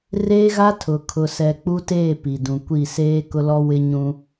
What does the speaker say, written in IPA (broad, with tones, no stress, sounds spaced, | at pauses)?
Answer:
r eː˦ ɣ a˦ tʰ ʊ˨ kʰ ʊ˨ s ɛ˨ k͡p u˦ t eː˦˨ p i˨ d ũ˨ kʷ i˦˨ s eː˦ k ʊ˦ l ɔ˦ w ɪ˦ ɲ ũ˦